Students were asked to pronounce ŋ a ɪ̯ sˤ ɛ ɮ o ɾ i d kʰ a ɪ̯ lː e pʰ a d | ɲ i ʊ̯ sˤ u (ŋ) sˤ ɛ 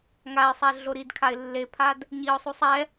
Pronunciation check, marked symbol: incorrect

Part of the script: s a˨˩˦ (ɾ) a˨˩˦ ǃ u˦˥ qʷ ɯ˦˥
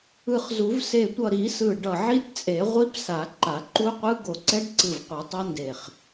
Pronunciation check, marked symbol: incorrect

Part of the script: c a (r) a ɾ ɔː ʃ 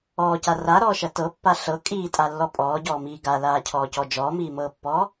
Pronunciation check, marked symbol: correct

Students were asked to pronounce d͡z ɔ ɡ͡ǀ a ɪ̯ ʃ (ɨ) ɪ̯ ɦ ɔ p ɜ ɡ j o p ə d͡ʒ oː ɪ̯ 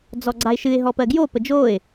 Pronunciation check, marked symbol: correct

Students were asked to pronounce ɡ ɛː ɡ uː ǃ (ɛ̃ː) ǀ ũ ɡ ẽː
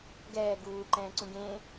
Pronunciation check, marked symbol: correct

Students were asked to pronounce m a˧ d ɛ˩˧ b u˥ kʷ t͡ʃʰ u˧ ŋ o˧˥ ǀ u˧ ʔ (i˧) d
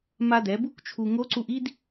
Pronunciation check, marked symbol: incorrect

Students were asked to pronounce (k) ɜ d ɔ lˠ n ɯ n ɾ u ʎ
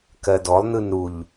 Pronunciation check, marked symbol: correct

